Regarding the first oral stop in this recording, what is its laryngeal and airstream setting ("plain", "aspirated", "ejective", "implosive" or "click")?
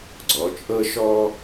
click